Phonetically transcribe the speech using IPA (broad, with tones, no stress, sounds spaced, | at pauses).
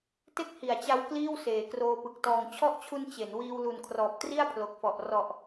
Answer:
t e˥˩ k̚ h i˨˩ a̯ t͡ɕ a˧ w k l iː˥˩ w s eː˩˦ k r oː˧ p ɯ˨˩ k̚ t ɔː˨˩ ŋ t͡ɕʰ ɔ˦˥ ʔ t͡ɕʰ u˧ n t͡ɕ e˩˦ n w iː˧ w l u˨˩ n kʰ r ɔː˨˩ p̚ t r i˥˩ a̯ pʰ l o˨˩ k̚ f ɔ˨˩ ʔ r ɔ˨˩ ʔ